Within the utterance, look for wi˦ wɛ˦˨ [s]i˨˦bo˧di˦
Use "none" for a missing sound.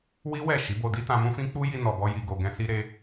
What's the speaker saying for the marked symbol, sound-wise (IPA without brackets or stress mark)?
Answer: ʃ